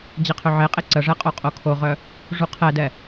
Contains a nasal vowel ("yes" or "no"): no